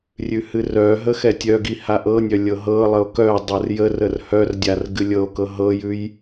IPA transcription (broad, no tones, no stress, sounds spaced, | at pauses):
rʲ ʉ h ɨ r œ ɦ ə x ɛ tʲ œ ɡ i h a ʔ ɤ nʲ œ lʲ ɤ ɦ ɤ lˠ ə o̯ k œ dˤ ɤ r j ə r ə r h œ r dʲ a r ɡ ɨ lʲ ɤ o̯ k ɤ ɦ ɤ j ʉ j